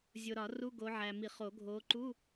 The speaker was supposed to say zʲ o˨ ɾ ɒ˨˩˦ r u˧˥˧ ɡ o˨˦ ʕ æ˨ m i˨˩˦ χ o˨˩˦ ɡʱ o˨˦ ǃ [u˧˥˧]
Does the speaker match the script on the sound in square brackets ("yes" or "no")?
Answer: yes